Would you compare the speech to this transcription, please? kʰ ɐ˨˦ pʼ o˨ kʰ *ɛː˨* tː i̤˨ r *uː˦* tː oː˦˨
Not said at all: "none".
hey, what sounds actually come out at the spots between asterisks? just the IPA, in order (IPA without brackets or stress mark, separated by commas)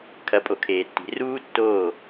eː˨, uː˦